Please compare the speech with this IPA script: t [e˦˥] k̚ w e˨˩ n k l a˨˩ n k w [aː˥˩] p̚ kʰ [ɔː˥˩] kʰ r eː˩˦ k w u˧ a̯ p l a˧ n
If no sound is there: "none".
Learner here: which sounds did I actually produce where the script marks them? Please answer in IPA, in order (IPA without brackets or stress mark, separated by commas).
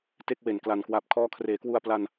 e˥˩, aː˨˩, ɔː˦˥